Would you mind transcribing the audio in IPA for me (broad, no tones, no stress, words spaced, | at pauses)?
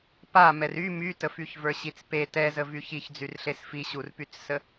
pa mɛry mytəfyç və˞ɕit͡spe tɛzə vyçiçd͡zyrɬes fiɕurpyt͡ssə